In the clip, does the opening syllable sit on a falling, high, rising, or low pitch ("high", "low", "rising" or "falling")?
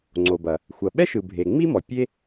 low